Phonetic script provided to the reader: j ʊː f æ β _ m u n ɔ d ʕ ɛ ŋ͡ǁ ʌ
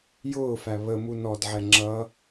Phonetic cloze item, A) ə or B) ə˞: A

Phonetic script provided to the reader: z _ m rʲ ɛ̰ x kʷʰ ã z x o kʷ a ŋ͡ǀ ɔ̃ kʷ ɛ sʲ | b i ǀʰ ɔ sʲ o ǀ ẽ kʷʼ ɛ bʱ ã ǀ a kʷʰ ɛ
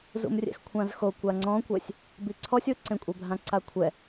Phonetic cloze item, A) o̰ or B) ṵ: B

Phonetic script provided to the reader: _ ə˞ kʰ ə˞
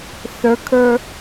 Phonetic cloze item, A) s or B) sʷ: A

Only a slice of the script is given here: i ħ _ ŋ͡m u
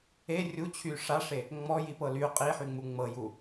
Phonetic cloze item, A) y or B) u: A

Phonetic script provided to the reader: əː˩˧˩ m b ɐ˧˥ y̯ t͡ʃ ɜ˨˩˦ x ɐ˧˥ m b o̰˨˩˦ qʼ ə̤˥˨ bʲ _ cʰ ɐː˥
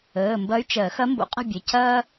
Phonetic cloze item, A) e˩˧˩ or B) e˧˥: A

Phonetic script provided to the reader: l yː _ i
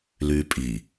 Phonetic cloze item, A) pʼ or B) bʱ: A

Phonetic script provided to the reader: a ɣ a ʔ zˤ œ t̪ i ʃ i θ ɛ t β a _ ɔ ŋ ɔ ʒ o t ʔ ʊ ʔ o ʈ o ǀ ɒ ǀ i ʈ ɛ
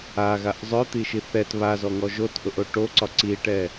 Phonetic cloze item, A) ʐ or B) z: B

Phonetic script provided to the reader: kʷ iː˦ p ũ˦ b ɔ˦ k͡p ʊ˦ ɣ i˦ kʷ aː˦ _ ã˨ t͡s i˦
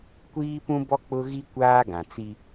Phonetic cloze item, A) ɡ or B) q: A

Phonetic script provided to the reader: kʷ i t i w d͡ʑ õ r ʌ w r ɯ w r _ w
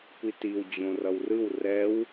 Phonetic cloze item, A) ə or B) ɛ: B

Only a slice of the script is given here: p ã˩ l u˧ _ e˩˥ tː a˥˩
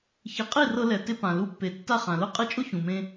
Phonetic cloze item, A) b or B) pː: B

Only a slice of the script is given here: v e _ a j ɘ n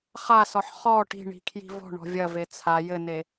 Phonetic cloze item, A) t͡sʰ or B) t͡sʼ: A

